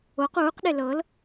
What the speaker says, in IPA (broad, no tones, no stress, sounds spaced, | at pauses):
o q uː q ɗ e l ɤ l